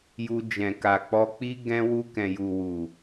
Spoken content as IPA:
j u˧ d͡ʒ ɛ̃˨ k a˨ k͡p ɔ˧ k͡p i˦ ɡ ɛ̃˧ w u˧ k ɛ̃˨ j u˨ w u˨

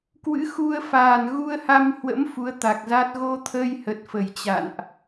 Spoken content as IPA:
k w ɨ̰˧˥ x u˧ ə̯ f aː˨˩ n ɣ u˧ ə̯ h a˧ m h w ə̰˧˥ m f u˨˦ ə̯ t̪ a˨˩ k̚ z a˦˥ t̚ ɣ o˧ t̪ʰ ə˧ j h ə˨˩ t̚ f ə˧˩ j t͡ɕ a̰˧˨ n ʔ

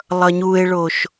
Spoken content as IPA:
lˠ ʌ ɲ u e̯ ɭ o ʃ

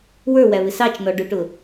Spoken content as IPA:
w ə˞ w æ β ɪ s ɑ t͡ʃ n ɔ ɖ ʊ ʈ ʊ

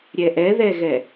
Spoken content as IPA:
ɾʲ ɛ ʔ ɛ ð ɛ ɣ ɛ

